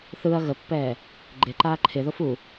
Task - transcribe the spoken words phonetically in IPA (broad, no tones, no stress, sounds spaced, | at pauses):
θ ɯ ɐ̯ ɣ ə pː ɛː | ɡ͡ǃ ɪ ǃ aː ǃʰ ɪ ð o f u